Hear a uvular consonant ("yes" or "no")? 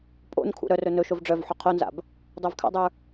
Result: yes